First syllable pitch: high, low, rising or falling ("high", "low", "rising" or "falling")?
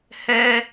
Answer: high